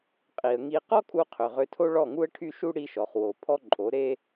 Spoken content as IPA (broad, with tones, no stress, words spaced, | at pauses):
qʼi˨ə̯ŋi˧ qɔ˦kʼu˧ qʰø˨ʁø˧tʰo˦ ɭɔ˦˨ŋu˦ə̯ʈʰy˦ʃu˦ ɽi˦ʃɔ˨χ wo˨ pʰɔ˦ǃʼo˨˦ ɾe˦